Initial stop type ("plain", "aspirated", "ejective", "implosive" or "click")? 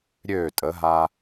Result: ejective